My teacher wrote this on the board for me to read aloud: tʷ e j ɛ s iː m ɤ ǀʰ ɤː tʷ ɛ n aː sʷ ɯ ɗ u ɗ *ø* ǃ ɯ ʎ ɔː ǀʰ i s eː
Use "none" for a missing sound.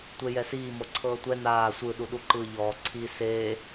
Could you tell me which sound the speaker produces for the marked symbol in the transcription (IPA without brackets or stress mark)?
u